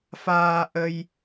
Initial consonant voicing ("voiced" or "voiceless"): voiceless